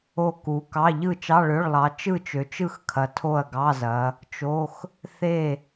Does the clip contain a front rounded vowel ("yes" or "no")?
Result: yes